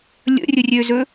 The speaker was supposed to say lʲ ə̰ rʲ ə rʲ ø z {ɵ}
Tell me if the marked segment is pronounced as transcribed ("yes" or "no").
yes